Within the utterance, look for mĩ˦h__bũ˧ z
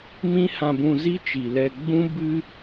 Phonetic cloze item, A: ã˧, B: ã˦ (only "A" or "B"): A